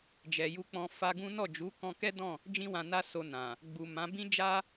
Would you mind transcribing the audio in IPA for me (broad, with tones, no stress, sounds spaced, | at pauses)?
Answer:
d͡ʒ ɛ˨ j u˧ k͡p ɔ̃˧ f a˧ ɡ ũ˦ n ɔ˦˨ d͡ʒ u˨˦ k ɔ̃˧ k ɛ˦ d ɔ̃˦˨ | d͡ʒ ĩ˦ w ã˧ n a˦ s o˧ n ã˨ | ɡ͡b u˨ m ã˨˦ b ĩ˦ d͡ʒ a˦